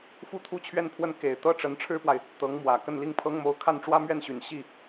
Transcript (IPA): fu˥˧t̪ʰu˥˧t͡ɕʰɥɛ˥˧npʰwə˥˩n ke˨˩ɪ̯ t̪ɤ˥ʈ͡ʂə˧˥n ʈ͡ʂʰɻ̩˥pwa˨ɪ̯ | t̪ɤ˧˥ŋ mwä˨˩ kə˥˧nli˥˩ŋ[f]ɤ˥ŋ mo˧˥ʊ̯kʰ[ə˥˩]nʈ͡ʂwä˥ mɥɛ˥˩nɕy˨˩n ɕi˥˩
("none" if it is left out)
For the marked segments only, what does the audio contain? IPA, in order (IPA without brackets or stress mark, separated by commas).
pʰ, a˥˩